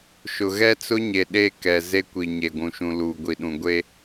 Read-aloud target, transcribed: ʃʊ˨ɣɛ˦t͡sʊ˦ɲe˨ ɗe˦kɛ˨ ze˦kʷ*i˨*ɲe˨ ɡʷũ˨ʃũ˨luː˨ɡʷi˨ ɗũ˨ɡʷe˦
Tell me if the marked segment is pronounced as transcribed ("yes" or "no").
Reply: yes